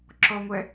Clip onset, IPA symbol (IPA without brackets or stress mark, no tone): ǁ